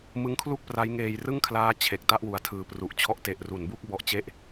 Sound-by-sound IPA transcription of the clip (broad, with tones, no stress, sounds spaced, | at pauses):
m ɯ˦˥ ŋ kʰ l u˥˩ k̚ p r a˦˥ j ŋ eː˧ j r ɯ˥˩ ŋ kʰ l aː˦˥ t͡ɕʰ e˨˩ k̚ t a˥˩ ʔ w u˨˩ a̯ tʰ ɯː˨˩ p r u˨˩ ʔ t͡ɕʰ ɔ˦˥ ʔ t e˨˩ ʔ r u˩˦ n b u˥˩ k̚ b ɔ˦˥ ʔ t͡ɕ e˥˩ ʔ